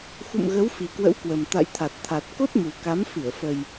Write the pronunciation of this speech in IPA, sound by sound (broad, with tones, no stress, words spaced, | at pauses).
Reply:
xṵ˧˨mɣə˨˦w fi˨˩kwə̰˧˥wkwə˨˩m t̪a̰˧˨jt̪ʰa˨˩t̚t̪ʰa˨˩t̚ ko˦˥t̚mu˨˩ka˨˦m fɨ˧˩ə̯fə˨˩j